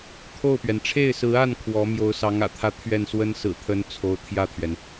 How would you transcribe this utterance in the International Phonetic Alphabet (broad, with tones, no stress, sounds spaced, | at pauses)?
t̪ʰ o˥˩ ʊ̯ p ɥ ɛ˩ n ʈ͡ʂʰ e˥˩ ɪ̯ s ɹ̩˧˥ a˥˩ n kʰ w ɔ˧˥ m j o˧˥ ʊ̯ s ɑ˧˥ ŋ ä̰˨˩ t̪ʰ ä˧˥ t̪ʰ ɥ ɛ˥˩ n s w ə˥ n s ɹ̩˨˩ t̪ʰ ə˧˥ n t͡sʰ o˧˥ ʊ̯ t̪ʰ j ä˥˩ t̪ʰ ɥ ɛ˩ n